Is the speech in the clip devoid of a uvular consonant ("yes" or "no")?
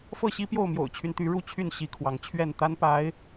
yes